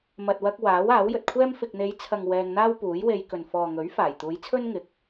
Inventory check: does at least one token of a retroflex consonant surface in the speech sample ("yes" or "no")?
no